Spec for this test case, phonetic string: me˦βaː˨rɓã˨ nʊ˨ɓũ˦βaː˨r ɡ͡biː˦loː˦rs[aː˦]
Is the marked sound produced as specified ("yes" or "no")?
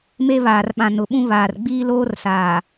no